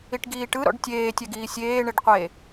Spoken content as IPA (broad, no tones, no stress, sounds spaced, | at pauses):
i ʈ ɡ iː ʈ ɯ ɾ ɔ̰ ɖ tʲ eː tʲ ɛ ɡ iː sʲ eː ɳ e ɖ qʷ e